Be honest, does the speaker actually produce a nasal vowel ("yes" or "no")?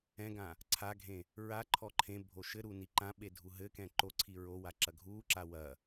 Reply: yes